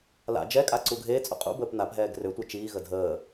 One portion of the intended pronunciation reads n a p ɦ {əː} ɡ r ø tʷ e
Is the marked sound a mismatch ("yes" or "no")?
yes